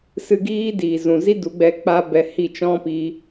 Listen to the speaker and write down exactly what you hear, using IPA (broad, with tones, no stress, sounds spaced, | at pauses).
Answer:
s ɨ˧ ɡ iː˦ d iː˨ z ũ˨ z i˦ d u˨˦ ɡ͡b ɛ˧ k͡p a˦ b ɛ˧ h i˦˨ t͡ʃ ɔ̃˦ p i˧